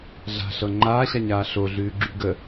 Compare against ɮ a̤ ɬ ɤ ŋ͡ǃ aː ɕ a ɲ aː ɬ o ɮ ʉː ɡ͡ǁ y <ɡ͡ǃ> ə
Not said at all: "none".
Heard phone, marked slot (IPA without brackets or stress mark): ɡ